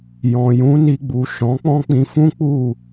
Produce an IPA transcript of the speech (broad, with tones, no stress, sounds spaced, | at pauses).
j ɔ̃˨ j ũ˨˦ n i˧ ɡ͡b u˨ ʃ ɔ̃˨˦ k͡p ɔ̃˦ k͡p ĩ˧ f ũ˦ k͡p u˦˨